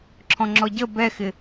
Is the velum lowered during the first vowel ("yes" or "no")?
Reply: yes